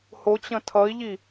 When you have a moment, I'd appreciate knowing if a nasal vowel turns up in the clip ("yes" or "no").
yes